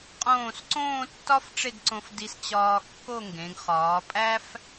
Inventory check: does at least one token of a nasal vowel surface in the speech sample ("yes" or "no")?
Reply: yes